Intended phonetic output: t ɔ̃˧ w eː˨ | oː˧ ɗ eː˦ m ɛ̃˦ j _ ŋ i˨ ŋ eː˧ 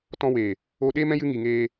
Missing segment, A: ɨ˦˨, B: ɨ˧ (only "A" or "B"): B